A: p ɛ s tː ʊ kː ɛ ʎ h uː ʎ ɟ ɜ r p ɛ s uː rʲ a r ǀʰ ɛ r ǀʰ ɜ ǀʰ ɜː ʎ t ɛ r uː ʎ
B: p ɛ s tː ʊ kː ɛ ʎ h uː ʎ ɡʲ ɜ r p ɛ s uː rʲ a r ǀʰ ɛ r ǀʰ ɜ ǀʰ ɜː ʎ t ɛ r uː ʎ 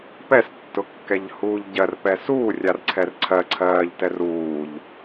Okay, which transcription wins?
A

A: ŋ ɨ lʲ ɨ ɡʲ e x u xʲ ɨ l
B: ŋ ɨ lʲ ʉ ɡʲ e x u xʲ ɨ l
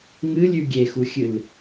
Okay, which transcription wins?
B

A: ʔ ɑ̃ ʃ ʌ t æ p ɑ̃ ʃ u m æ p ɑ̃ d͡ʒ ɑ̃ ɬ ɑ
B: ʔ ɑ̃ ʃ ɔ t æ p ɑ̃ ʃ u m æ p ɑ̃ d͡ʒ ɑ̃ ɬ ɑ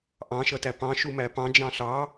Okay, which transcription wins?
A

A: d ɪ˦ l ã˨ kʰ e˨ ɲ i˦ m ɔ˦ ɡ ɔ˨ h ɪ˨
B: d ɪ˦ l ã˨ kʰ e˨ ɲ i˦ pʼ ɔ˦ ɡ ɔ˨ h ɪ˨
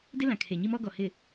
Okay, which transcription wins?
A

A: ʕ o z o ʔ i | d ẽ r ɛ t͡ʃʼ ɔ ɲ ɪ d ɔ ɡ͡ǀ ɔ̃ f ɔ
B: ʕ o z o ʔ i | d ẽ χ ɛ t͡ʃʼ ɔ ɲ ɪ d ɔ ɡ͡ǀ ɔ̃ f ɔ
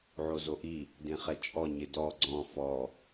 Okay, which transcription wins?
B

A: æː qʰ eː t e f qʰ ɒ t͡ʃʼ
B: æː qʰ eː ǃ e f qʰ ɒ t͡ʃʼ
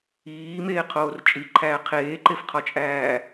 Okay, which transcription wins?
B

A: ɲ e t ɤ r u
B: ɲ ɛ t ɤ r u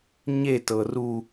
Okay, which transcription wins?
A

